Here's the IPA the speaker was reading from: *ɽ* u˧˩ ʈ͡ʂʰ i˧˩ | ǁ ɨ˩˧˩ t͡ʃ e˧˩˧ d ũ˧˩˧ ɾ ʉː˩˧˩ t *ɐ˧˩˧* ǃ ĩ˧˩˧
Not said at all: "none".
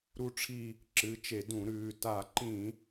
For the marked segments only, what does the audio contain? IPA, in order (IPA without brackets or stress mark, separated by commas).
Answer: ɾ, a˧˩˧